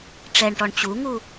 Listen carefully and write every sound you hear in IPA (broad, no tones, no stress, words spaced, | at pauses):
ʈ͡ʂɛɳʈɔɳ t͡ɕuŋu